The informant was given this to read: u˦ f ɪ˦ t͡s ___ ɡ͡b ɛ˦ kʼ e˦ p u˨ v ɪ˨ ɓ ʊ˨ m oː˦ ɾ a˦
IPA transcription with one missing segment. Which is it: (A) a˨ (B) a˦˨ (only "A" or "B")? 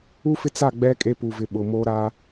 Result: B